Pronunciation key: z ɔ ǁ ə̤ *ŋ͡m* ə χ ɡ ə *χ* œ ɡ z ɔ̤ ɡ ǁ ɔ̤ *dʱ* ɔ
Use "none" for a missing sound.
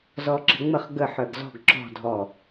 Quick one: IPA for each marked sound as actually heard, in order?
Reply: ŋ͡m, ħ, dʱ

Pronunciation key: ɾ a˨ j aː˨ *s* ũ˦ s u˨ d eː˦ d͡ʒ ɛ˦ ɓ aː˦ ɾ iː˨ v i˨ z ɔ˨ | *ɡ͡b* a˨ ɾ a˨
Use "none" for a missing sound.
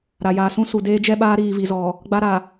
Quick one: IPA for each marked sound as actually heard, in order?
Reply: s, ɡ͡b

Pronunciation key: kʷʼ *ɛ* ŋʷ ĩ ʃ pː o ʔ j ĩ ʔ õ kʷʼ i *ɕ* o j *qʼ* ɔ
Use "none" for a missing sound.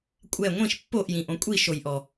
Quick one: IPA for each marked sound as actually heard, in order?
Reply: ɛ, ʃ, ʔ

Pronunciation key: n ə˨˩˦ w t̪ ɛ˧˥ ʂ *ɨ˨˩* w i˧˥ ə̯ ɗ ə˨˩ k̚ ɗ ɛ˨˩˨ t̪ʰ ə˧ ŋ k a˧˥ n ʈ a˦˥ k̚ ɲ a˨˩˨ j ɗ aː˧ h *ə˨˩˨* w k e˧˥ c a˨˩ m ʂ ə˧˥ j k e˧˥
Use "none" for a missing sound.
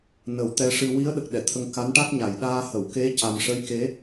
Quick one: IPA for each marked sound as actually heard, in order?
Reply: ɨ˧, ə˨˩˨

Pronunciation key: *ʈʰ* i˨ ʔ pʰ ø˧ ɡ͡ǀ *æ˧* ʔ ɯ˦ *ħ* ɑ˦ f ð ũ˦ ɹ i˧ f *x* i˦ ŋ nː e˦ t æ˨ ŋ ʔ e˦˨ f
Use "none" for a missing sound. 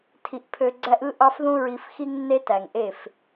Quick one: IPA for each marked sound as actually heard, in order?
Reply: tʰ, æ˦, ʔ, x

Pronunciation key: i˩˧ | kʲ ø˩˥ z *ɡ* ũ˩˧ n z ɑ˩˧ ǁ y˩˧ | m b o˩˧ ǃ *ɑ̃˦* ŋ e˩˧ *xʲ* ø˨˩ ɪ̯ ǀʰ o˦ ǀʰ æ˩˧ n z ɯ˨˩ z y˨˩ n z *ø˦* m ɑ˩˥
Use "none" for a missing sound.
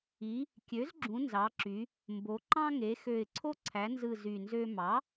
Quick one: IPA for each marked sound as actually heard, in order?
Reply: ɡ͡ǁ, ɑ̃˦, x, ø˦

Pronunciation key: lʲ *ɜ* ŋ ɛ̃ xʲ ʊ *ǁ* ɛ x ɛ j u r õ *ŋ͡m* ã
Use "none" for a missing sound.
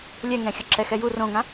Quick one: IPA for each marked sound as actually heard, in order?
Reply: ɛ, ǁ, ŋ

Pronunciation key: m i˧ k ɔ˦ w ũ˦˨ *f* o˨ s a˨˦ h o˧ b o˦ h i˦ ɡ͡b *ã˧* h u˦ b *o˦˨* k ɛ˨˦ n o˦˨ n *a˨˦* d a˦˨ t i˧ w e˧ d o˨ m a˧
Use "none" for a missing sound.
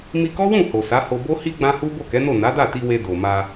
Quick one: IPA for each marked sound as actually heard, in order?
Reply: h, ã˦, o˦˨, a˨˦

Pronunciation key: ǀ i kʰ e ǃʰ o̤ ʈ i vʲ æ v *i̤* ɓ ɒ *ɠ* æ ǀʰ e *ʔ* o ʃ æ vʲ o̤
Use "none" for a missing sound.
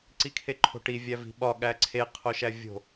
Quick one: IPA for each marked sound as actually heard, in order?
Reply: i̤, ɠ, qʰ

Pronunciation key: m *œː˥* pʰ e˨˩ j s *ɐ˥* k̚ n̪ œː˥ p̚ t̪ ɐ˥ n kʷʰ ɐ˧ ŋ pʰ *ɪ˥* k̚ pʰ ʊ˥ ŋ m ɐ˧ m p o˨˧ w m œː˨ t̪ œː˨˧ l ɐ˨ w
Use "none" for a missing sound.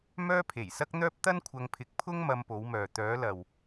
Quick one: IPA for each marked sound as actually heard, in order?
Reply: œː˥, ɐ˥, ɪ˧

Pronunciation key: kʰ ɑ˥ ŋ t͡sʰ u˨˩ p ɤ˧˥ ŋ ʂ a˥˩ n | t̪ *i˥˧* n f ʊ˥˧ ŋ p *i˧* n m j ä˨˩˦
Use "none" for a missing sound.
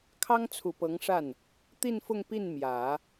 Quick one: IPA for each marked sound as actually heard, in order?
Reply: i˥˧, i˥˩

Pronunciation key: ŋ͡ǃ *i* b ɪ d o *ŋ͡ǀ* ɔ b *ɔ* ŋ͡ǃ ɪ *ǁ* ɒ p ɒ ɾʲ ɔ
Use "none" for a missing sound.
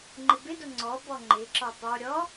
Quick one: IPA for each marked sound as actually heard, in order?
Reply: ɪ, ŋ͡ǀ, ɔ, ǁ

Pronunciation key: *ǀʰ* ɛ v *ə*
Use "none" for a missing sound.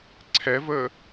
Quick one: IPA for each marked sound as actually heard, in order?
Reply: ǀʰ, ə

